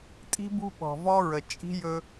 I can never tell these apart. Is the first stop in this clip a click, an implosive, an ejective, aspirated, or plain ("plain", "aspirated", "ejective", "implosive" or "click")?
ejective